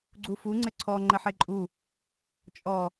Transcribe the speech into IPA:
ɡ͡ǀ u f u ŋ͡ǀ ɘ ǀʰ ɔ ŋ͡ǃ ɘ ħ e ǃʼ u | t͡ʃʼ ɔ

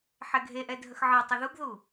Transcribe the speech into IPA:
ħ ɛ ɡʱ e ʔ ɛ dʱ ə x ʕ ə˞ tˤ ɘ ð u ɡ ð u

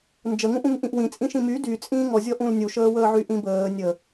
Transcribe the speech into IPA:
n d͡ʒ ə ŋ ũ ʔ ũ ŋ ʔ ĩ ʔ w ĩ t͡sʼ ĩ ʃ ĩ m y d y t͡sʼ ĩː ŋ ɔ zʲ ɔ ʔ ũ l nʲ u ʃ əː w əː ʕ y ʔ ĩ b əː nʲ ə

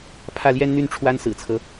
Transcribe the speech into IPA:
pʰ ä˥˩ l j ɛ˥ n n̪ y˥˩ n ʈ͡ʂʰ w a˥ n s ɹ̩˨˩ t͡sʰ ɤ˦

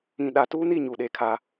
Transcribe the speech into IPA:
ĩ˨ ɗ a˨ t uː˦ n i˦˨ ɲ u˨ ɗ e˦ kʰ a˦

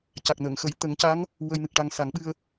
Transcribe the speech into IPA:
c a˨˩ k̚ n əː˨˩˨ ŋ x ə˨˩˦ j t̪ ə˨˩˦ ŋ c a˧˥ ŋ | w ə˧ j n ɨ˨˩ k̚ ʈ a˧ ŋ s a˨˩˦ ŋ ɓ ɨ˧ ə̯

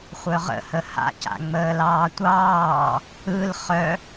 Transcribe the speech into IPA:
χʷ œ ʁ ə̰ h ə h a̰ c a̰ ŋ͡m əː l ɑː tʷ ɑː | ɯ l χ œ

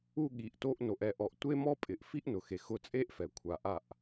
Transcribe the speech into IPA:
u˧ ɠ i˨ ʔ t o˧ ʔ n o˨ ʔ ɛ˧ ʔ ɔ˨ ʔ tʷ e˦ m ɔ˦ pʼ ɪ˨ ʔ f i˦ ʔ n ʊ˨ x e˨ x ʊ˧ t͡sʼ e˦ ʔ f ɛ˨ kʷʰ a˨ ʔ a˦˨ ʔ

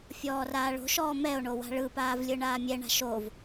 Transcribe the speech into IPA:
fʲ ɔː r aː ɭ o̤ ʃ ɔː m ɛ o̯ ɳ o w a̤ ɭ ɯ p aː v lʲ ɯ ɳ aː mʲ ɛ ɳ a̤ ʃ o v

